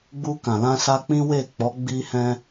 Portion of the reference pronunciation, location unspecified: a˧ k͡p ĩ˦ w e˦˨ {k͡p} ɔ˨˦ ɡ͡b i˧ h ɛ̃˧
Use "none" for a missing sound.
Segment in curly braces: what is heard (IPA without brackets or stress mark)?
k͡p